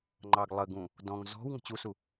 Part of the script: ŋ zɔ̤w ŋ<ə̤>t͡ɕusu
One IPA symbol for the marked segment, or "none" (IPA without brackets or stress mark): ə̤